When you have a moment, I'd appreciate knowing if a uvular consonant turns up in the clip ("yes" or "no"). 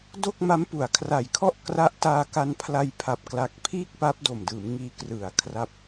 no